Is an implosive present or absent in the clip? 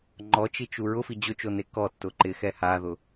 absent